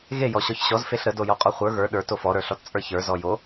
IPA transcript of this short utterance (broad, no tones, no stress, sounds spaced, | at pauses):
ɣ e j ɔ ɕ ɔ ç ɕ ɔ z f e ɬ ɾ ə d o j ɔ qʼ ɔ χʷ ə˞ ɣ ə˞ ɗ ə˞ t o f ɔ ɾ ə˞ ɬ ɔ t t͡sʼ ə˞ ç ə˞ z ɔ j o